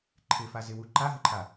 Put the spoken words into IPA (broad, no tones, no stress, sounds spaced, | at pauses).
ǃʰ ɪ f a z ɪ w u ǃ a ɦ ə ǃʰ a